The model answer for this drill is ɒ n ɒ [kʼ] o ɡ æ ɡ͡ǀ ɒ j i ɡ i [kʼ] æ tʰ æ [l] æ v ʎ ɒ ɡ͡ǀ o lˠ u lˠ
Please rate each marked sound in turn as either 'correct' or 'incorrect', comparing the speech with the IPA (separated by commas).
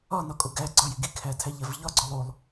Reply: correct, incorrect, incorrect